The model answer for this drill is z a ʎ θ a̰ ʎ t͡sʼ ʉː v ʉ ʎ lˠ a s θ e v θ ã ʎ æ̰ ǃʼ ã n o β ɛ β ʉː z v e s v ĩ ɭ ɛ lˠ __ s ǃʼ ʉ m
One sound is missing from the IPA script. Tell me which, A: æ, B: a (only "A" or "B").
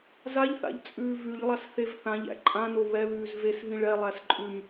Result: A